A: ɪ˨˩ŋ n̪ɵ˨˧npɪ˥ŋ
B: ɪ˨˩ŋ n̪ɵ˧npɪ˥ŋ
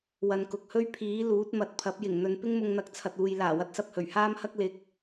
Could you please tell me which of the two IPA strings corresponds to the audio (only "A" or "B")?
A